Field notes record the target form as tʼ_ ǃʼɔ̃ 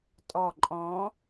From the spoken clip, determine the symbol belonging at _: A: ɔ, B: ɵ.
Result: A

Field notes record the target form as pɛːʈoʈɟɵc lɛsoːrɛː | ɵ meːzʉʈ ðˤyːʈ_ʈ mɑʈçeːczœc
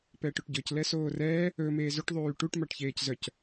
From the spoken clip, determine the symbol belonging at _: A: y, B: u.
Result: B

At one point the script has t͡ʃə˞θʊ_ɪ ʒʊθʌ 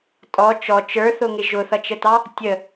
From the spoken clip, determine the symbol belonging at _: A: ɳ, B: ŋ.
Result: B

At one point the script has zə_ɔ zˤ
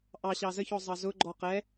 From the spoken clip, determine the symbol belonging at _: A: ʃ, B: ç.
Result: B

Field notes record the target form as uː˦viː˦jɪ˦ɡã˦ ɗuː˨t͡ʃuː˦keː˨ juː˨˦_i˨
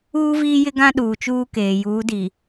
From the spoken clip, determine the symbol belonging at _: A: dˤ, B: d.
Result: B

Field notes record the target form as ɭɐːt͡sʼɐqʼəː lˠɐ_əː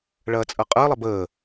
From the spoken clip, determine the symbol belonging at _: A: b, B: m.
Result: A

